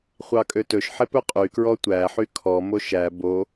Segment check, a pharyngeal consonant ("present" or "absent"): present